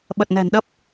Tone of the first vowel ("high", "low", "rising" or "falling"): low